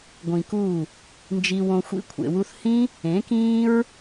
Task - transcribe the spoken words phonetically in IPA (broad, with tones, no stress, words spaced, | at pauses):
ɡʷĩ˨ku˦˨ | nd͡ʒi˧wõ˧xʷḭ˦ kʷʰḛ˨wu˧θ hĩ˦ | ẽ˨˦kĩː˦ɹ